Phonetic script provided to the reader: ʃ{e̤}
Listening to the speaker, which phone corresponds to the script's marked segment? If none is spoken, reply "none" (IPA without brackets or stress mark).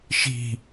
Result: i̤